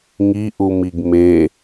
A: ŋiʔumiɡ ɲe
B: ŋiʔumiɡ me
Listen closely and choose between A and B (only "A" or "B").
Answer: B